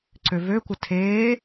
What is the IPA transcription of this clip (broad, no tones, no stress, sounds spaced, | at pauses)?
ǀ ø v ø kʷ ə tʰ eː